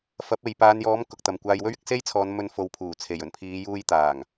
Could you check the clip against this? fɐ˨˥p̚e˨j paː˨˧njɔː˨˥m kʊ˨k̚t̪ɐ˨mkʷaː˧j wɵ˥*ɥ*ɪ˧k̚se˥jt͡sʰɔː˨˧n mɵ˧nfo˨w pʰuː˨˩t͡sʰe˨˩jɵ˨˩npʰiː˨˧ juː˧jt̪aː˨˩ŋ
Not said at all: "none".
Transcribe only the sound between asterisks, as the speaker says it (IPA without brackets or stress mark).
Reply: ɥ